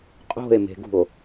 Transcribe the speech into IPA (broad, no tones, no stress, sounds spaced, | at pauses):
qʼ o̤ e̯ m e̤ ɡ ṳ o̯